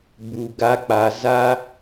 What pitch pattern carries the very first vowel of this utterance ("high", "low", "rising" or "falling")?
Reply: low